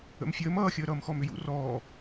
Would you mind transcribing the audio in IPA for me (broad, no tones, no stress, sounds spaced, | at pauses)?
ə̰ m fʲ əː m ʌː xʲ əː ɾ ʌː m x ɔ m ʏ j ṵ r ɔː